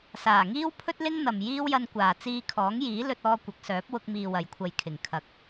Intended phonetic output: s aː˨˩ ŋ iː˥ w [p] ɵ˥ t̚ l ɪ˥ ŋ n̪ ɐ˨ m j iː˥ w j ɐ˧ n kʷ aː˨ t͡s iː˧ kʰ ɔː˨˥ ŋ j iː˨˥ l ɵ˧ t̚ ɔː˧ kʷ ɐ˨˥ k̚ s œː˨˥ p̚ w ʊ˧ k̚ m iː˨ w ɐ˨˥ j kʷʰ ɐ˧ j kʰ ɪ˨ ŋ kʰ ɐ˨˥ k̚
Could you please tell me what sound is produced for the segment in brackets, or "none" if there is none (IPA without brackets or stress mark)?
pʰ